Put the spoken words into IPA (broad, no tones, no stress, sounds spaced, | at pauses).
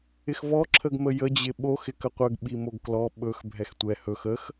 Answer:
ɪ x v ɔ ǁʰ ə ɡ m ə j ə d͡ʑ ɪ ɓ o x ɪ k ə qʷ ə ɡ ɓ i m o ɡ k l ɔ ɓ ɵ x bʱ ɛ x tʷ ɛ h ɵ x ə x